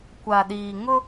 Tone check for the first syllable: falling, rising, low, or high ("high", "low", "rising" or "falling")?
low